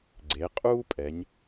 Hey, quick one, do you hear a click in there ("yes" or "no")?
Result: yes